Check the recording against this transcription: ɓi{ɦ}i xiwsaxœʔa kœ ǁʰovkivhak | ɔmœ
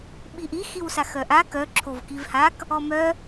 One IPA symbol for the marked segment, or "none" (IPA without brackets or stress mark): ʔ